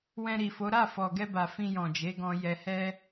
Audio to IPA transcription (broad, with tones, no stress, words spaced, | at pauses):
wɛ̃˧ɾi˨fo˨˦ɾa˦˨ fɔ˨ɡɛ˧ba˨ fĩ˧jɔ̃˨d͡ʒe˨˦ɡɔ̃˧ jɛ˨hɛ˧